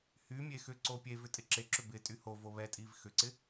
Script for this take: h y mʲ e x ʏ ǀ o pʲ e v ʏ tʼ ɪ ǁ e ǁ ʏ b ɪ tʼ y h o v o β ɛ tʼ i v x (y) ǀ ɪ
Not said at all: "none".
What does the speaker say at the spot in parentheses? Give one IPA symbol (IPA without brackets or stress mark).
ʏ